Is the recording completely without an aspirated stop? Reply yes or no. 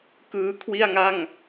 no